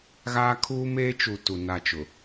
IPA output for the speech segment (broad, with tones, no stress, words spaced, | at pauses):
ɣaː˦kʰuː˦ meː˦t͡ʃu˨ tu˨na˦˨t͡ʃʊ˨